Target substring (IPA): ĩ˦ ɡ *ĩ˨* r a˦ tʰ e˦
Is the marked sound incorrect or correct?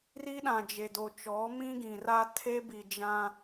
correct